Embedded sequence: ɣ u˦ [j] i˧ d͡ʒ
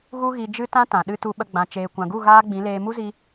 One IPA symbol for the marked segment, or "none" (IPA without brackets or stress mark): ɣ